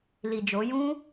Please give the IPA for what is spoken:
l i˨ d͡ʒ o˨˦ j ũ˦

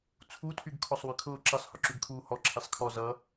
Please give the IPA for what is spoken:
t͡sʰ u tʰ y ɡ kʰ ɔ sˤ w y kʰ ʊː ǁ ə sˤ h ʊ ǁ y ɡ kʰ uː h ɔ ǁʰ i sˤ kʰ ɔ z ʌ

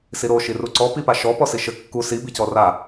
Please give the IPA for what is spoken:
s i ɾ o ʃ i r u ǀ ɔ p i p a ʃ ɔ p ɔ s i ʃ ɘ kː u s i b i c ɔ r a

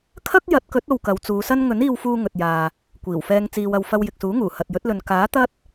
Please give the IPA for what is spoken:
kʰ ɐ˥ k̚ j ɐ˨˥ t̚ k ɵ˨˥ t̚ o˧ w k ɐ˨˧ w t͡s uː˨˧ s ɐ˥ n ŋ ɵ˨˥ n iː˧ w f uː˧ ŋ ɵ˨ t̚ j aː˨ | kʷ iː˨˩ w f ɛː˧ ŋ t͡s iː˨ w ɐ˨ w f ɐ˧ w j ɪ˨ k̚ s uː˨˥ ŋ uː˨˩ h ɐ˨ t̚ j ɵ˨˥ t̚ l ɵ˨ n k aː˨˥ t̪ ɐ˥ t̚

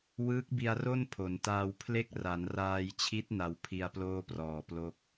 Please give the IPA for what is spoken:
w ɯː˦˥ k̚ b i˧ a̯ r o˥˩ n pʰ o˩˦ n t aː˧ w pʰ l e˥˩ k̚ r a˩˦ n r aː˧ j t͡ɕʰ i˦˥ t̚ n a˧ w pʰ i˧ a̯ p l oː˥˩ p r ɔː˨˩ p l o˦˥ k̚

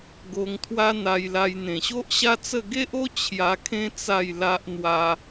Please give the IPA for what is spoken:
ɡ o˧ ŋ t̪ʰ w a˦ n̪ a˧ j l a˧ j n̪ ẽ˨˩ ɕ o˦ ʔ ɕ a˦ t͡s ə˥˧ ɡ e˦ ʔ o˦ t͡ɕʰ j a˧ kʰ ẽ˦ t͡s a˥˧ j l a˦ ʔ n̪ w a˧

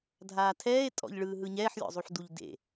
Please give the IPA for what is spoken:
dʱ aː tʰ ɛː e̯ tʼ ɔ̰ ʎ ɭ ɯː ɦ ɯ ɲ ɛː ħ lʲ ɔ̰ zˤ u ħ d u ʎ d ḛ

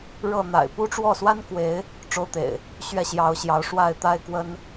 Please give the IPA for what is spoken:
ɻ ɤ˥˨ n̪ a̰˨˩ ɪ̯ p u˦ ʈ͡ʂ w ɔ˥˨ s w a˦ n k w e˨˦ ɪ̯ | ʈ͡ʂ o˦ ʊ̯ t̪ ḛ˨˩ ɪ̯ | ɕ ɥ ɛ˦ ɕ j ɑ˨˦ ʊ̯ ɕ j ɑ˨˦ ʊ̯ ʂ w a˥˨ ɪ̯ t̪ a˦ ɪ̯ k w ə˦ n

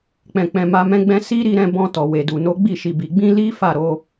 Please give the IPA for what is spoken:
k͡p ɛ̃˨ k͡p ɛ̃˨ m a˧ m ɛ̃˦ ɡ͡b ɛ̃˦ s i˦ ɾ i˧ ɾ ɛ̃˧ b ɔ̃˧ t ɔ˨ w e˨ d u˨ n o˨˦ ɡ͡b i˦˨ ʃ i˨ b i˨ ɡ͡b ĩ˧ l i˦ f a˦˨ ɾ o˧

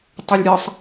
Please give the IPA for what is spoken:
tˤ ʏ lʲ ɾʲ ʌ sˤ

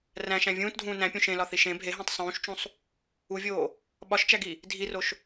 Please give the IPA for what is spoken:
r æ̃ ʃ æ̃ vʲ ũː t dʱ ũː n æ̃ pʲ ũ ʃ ẽ l ɒ θ i ʃ ẽ bʱ e ɦ æ̃ tˤ sˤ ũː ʃ t͡ʃ ũ sˤ | u vʲ oː | ɓ ɒ ʃ t͡ʃ æ ɡ i | dʱ i r o ʃ

